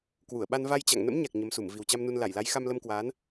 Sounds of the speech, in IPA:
kwu˧˩ə̯ɓa˧n va˧jt͡ɕa̰˧˨ŋ nə̰˧˥mɲa˨˩k̚ ɲə˨˦msu˧˩m vi˨˩wt͡ɕa˧mnu˧n la˧˩jla˨˦j xa˧mlə˧mkwaː˨˦n

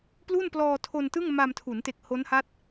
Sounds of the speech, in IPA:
plu˥˩nplɔː˧tʰo˧ntɯ˥˩ŋ ma˧mtʰu˩˦nte˨˩k̚ ho˦˥nha˦˥t̚

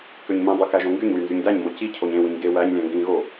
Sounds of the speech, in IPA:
køɲmĩdˤy kæʒõŋɡyɲwy nzyɲdæɲmo ci cʰoɲẽwĩɲ ɡe wæɲlʲæ̃ ŋɡĩɣo

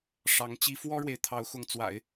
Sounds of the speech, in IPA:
ʂɑ˧˥ŋt͡ɕi˥ fwɔ˥ɻwe˨ɪ̯t̪ʰɑ˧˥ʊ̯xʊ˧˥ŋ t͡swa̰˨˩˦ɪ̯

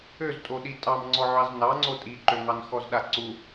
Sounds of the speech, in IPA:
øztʼoɗi tʼɑmŋ͡ǀɔʕɑz nɑŋ͡ǀo tʼiǃøŋɑn xɔzɗaǀu

